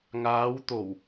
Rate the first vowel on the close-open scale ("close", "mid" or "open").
open